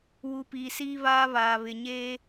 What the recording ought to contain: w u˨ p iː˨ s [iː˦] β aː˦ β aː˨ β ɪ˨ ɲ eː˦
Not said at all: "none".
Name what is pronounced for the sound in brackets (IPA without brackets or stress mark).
iː˦